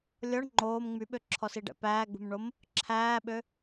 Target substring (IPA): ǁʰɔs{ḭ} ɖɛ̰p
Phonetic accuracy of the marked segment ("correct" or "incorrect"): incorrect